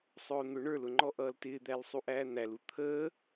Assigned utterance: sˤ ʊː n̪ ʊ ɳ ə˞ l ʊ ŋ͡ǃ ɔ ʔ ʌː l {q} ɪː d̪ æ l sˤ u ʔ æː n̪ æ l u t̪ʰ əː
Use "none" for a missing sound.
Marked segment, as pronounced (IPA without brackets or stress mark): t